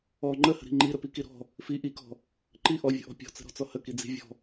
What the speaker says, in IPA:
ɔ ŋ͡ǃəhə̤ɾi̤ ŋ͡ǃiɾəpiki ɾɔ̤ | fi ʔikɔ̤ | ǃi ʔɔvʲə̤ʔɔ̤ pʲɔ̤t͡sə̤ɾɔ̤t͡sɔ həkid͡zi̤ vʲɔ̤

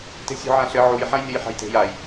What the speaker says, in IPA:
te̤sʲṳʕãɬɘ ʕuj ħãjnʲɘjħa̤jte̤j aj

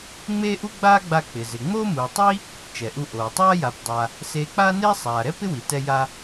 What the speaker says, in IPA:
ŋ͡meː˥ʔu˥ ɡ͡baː˥ɡ͡ba˧ k͡pɪ˩zɪ˩ ŋ͡moː˥muː˩tˤi˥ | t͡ʃɛ˩ʔu˧ ʔoː˩ tˤaː˥ja˩pdˤa˩ | seː˧k͡paː˥neː˥ sˤaː˩ɾɛ˥ pɪ˥wi˩tɛ˧ ja˧

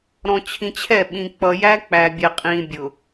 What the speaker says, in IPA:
ɾɔ̃˨t͡ɕʰĩ˨t͡ɕʰɛ˦˨ɓĩ˨ k͡pʌ˨jæ˦k͡pæ˨bʲɛ˨ qʼĩ˨ bʲʊ˨

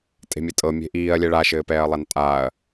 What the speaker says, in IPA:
tʼe̤mʲɘtʼɤ mʲe̤ʔiːɐ̯lʲɛ ɭaʃɘːpɛːɐ̯ lˠantʼaːɐ̯

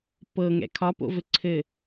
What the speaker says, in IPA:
pɤŋɛ̰ kʰɒpo̰vɘ ǀʰɘ

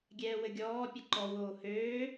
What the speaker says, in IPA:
ɡʲɛːwɘɡʲɔː pʲəǃɔ woːhøː

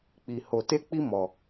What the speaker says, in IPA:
k͡pi˧ ho˧te˦k͡pi˦ mɔ˧

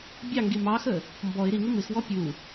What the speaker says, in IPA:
bʲɑŋɡi mɑxə | mbɔɪ̯ ɾiŋɪ mɪxwɔ pʲu

